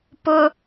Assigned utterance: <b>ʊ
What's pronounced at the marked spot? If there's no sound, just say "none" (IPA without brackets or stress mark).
p